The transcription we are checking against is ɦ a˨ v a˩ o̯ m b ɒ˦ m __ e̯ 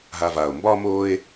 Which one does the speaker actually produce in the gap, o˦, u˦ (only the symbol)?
o˦